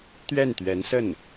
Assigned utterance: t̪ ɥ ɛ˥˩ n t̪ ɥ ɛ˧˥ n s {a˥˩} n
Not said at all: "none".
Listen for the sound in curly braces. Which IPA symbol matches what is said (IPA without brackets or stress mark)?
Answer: ə˥˩